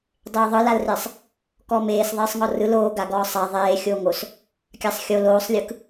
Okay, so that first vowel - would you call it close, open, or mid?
mid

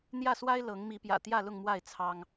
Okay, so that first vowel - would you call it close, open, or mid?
open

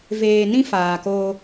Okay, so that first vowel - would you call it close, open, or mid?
mid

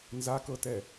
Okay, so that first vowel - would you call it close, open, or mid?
open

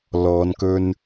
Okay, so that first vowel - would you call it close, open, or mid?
mid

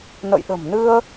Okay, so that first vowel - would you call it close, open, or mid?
mid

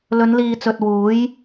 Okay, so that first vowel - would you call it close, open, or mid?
mid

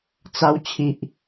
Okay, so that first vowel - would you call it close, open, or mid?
open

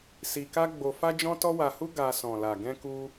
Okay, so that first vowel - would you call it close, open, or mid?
close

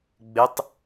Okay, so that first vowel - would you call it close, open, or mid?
close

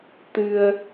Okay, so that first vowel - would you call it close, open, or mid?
close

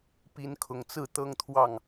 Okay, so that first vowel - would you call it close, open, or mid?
close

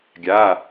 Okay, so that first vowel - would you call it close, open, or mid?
open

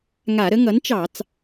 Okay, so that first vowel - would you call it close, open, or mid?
open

